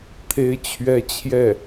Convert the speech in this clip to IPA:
t̪ʰ e˥ ɪ̯ t͡ɕʰ ɥ ɛ˥ t͡ɕʰ j ɛ˥˩

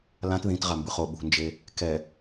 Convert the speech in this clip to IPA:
l ã t ð ĩ t ʁ a m b ɯ χ o ɓ ṳ n d͡ʒ e | k ɛ

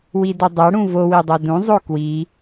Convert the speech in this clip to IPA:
w i d o dˤ a ɽ ũ v o w i dˤ a d ũ zˤ o k w i

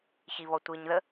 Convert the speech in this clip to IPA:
ç i β ɔ tʷ i ɲ ð ə

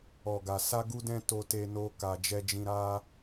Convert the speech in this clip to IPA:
ɔ˨ ɡ a˨ s a˧ ɡ u˧ d ɛ̃˧ t o˧ t e˧ n o˦ k a˧ d͡ʒ ɛ˧ d͡ʒ ĩ˧ ɾ a˦

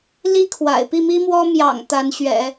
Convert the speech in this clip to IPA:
l i˥ kʰ w a̰˨˩ ɪ̯ p i˥˩ m i˥ m w ɔ˥ m j ɑ̰˨˩ ŋ t̪ a˧˥ n ɕ ɥ ɛ̰˨˩˦

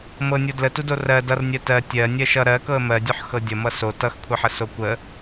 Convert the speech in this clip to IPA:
m ɤ nʲ o d l ə t u d o r ɜ d ʌ r nʲ ɜ t ɜ tʲ ɜ nʲ ɜ ʃ ʌ ɾ ɜ k ɤ ə̯ m ɜ dʲ o ħ x ɤ dʲ ʌ m ʌ s o t ʌ x kʷʰ ʌ ħ ə s o kʷ ə

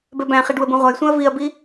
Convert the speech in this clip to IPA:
b ɛ b æ̃ χ i ɖ w ə b ũ ʁʷ a j sʷ ɛ̃ ɐ̯ v i ɐ̯ b i

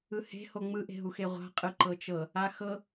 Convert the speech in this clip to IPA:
ɯ h e̤ h o ŋ͡m ɯ ʔ e̤ ɦ u x e ʁʷ a̤ qʼ ɯ ǃ ɤ t͡ʃ ɤ | a x ɤ

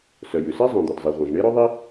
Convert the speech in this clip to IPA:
s œ˩ j ʉ˩ s e˥ zˤ œ̃˩ d̪ ɵ˩ d zˤ i˩ ʁʷ œ̃˩ z ɳ e˥ ɾ ɵ˥ ðˤ i˥

